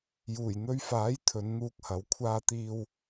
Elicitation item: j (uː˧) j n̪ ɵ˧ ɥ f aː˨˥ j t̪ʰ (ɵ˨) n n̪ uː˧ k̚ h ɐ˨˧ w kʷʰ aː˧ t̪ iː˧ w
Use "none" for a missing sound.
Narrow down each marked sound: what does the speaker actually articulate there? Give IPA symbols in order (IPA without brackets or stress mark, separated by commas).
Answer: uː˨˩, ɵ˨˧